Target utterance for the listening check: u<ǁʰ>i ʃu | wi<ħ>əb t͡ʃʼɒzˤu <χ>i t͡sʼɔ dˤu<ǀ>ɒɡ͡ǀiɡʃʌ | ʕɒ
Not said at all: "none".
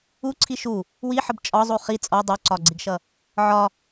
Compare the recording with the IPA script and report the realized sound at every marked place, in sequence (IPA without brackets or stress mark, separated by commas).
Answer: ǀʰ, ħ, χ, ǀ